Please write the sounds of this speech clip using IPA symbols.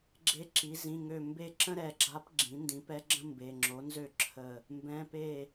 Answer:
ɡ͡ǁe˧˥ǁi˩˥ zĩ˩˧˩ŋø˧˩ mbe˥˩ ǁə̃˥ ɾɛ˧˩ɡ͡ǁa˧˥pɡ͡ǁĩ˩˥ ndĩ˩˥pɛ˧˥ɡ͡ǁə̃˥ mbe˩˧˩ ŋ͡ǁo˩˥nzø˥˩ǁʰə˧˩ | mbɛ̃˩˧˩pe˧˩

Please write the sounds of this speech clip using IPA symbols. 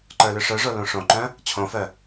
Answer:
ǃə˞lʏʂœʐo lõʂõǃœ̃ | t͡ɕʰõfœ

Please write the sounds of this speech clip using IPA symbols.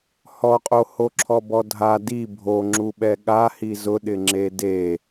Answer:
hɔqʼohoǁʰɔ bɔdʱa di bʱoŋ͡ǁuɓɛ ɠa hizʊɗɪŋ͡ǁe de

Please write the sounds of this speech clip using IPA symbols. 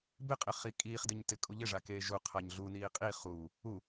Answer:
bɪqʼɪχi kʼiːχdɪɲtɪ kʼuʎɪʐa keːʒu qʰaɲɮu niːqʼi χuː | u

